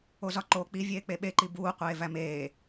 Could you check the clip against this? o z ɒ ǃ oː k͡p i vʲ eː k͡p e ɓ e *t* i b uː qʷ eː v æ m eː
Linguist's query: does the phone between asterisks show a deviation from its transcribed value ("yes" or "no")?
yes